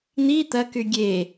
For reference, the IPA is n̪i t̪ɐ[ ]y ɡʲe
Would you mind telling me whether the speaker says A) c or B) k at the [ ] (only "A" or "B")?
B